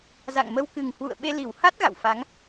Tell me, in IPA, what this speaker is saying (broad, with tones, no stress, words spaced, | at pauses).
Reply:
za̰˧˨ŋmə˧wkɨ˨˩ŋ hwṵ˧˨ə̯ɓe˧ li˧˩wha˦˥t̚ ɣa̰˧˨wfa˨˦ŋ